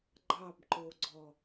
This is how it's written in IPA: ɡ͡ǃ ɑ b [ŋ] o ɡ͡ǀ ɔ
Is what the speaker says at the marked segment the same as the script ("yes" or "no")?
no